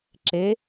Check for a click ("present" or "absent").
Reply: present